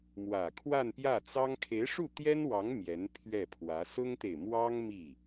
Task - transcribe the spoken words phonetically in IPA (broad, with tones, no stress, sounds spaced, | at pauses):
m w ä˨˩ kʰ w a˥˧ n p j ä˥˩ t͡s ɑ˥ ŋ kʰ e˧˥ ɪ̯ ʂ u˥˩ t̪ j ɛ˥ n w ɑ˧˥ ŋ m j ɛ˧˥ n pʰ ɥ ɛ˥˩ pʰ w ä˧˥ s ʊ˥ ŋ t̪ e˨ ɪ̯ m w ɑ˥ ŋ m i˥˩